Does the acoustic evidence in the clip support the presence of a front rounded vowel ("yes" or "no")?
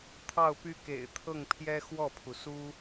yes